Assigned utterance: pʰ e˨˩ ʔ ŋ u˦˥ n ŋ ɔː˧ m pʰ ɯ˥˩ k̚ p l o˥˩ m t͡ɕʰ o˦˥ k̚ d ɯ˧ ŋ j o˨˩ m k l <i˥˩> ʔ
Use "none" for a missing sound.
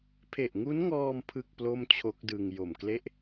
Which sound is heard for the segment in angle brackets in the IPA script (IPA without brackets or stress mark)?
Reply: e˥˩